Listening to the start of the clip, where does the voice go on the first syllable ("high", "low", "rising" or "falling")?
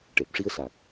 low